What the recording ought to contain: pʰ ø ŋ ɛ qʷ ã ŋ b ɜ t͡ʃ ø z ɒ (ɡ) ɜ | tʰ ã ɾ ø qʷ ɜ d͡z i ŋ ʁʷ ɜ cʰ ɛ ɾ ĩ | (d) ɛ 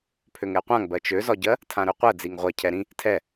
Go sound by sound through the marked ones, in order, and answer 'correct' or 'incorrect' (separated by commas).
incorrect, incorrect